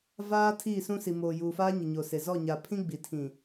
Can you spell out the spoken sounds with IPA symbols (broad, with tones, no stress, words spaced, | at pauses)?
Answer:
vaː˦ tʰiː˦˨sũ˦si˨ moː˨juː˨faː˦ ɲɪ˨ɲo˨se˨ zɔ˦˨ɲa˨ pʰĩ˦ɡ͡bi˨tʰĩ˨